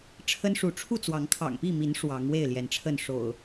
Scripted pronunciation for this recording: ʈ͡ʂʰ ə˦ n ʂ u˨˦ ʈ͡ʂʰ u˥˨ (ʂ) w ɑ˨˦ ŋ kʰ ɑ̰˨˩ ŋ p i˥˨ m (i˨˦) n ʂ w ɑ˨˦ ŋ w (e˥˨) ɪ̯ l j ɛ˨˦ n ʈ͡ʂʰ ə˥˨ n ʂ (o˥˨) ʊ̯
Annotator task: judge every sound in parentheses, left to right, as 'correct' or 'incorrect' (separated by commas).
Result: incorrect, correct, correct, incorrect